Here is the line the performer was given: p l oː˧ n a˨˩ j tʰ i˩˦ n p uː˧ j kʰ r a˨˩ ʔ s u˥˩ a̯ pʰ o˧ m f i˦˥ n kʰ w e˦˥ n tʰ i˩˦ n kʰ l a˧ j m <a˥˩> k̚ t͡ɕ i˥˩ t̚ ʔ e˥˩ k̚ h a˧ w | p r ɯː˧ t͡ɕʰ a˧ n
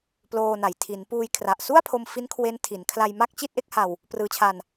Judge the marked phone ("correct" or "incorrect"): correct